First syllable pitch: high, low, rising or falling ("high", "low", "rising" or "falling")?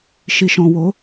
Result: low